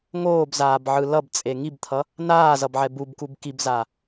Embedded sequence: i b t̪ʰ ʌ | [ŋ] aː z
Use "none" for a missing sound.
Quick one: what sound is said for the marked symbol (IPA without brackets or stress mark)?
n